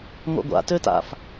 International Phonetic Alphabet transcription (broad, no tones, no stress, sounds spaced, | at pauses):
ŋʷ a̰ ɡʷ a̰ t ø t a̰ f